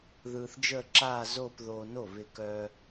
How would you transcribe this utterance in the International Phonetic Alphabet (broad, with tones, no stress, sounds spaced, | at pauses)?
ð ɯː˧ θ d͡ʒ əː˥˧ ǁ aː˥˧ z oː˥˧ p ð oː˧ n o˥˩ β ɪ˧ k œ˧